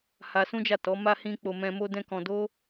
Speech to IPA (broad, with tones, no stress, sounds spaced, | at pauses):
h a˧ s ũ˦ d͡ʒ a˦˨ t ɔ˨˦ m a˦ h ĩ˦ k͡p o˧ m ɛ̃˧ m o˦ d ɛ̃˦ k ɔ̃˧ d o˦